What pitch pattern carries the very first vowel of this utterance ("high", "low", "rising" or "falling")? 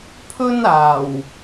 high